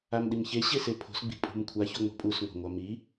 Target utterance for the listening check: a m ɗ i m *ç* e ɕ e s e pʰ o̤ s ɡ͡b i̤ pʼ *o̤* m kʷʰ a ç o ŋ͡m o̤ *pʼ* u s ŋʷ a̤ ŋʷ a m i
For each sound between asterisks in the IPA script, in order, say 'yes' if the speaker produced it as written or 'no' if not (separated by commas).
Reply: yes, no, yes